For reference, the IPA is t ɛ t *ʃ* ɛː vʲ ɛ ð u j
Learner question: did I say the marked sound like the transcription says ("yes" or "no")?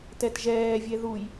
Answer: no